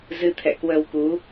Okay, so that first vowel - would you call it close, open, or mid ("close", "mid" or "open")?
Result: close